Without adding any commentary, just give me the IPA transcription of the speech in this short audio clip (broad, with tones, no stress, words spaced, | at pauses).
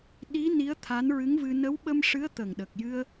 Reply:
ɗi˧˥ ni˧˥ə̯ t̪ʰa˧˥nɹɨ˧˥ŋvɨ˧ nə˧˥wɓə˧mʂɨ˧˥ə̯ t̪ə˨˩ŋɗə˨˩k̚jɨ˧ə̯